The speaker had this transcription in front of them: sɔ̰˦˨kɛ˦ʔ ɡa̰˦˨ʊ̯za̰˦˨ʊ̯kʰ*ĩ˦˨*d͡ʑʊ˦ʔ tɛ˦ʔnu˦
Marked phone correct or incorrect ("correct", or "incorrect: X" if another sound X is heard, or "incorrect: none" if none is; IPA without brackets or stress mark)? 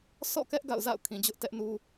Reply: incorrect: ĩ˨